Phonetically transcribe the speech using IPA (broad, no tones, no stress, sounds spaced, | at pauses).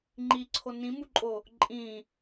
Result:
ŋ͡ǃ i ǀʰ o n ĩ m u ǃʼ o | ǃʼ ĩ